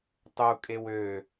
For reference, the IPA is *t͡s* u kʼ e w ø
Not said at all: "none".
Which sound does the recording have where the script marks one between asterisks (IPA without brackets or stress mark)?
tˤ